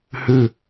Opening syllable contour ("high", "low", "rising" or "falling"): falling